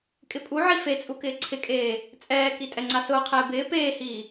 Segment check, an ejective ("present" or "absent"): present